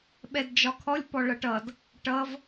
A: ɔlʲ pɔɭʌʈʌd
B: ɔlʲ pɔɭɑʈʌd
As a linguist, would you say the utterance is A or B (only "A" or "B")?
A